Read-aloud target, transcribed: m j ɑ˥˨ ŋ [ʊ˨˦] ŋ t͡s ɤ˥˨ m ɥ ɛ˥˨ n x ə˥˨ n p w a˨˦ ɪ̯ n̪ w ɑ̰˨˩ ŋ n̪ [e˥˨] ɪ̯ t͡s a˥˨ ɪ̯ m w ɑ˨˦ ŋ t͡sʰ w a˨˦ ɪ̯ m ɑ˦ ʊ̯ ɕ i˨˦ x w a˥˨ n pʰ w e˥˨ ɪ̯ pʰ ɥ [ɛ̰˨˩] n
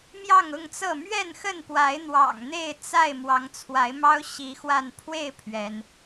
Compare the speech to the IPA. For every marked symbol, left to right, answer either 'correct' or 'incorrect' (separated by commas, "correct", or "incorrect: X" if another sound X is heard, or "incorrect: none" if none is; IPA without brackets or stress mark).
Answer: incorrect: ʊ˥˨, correct, incorrect: ɛ˨˦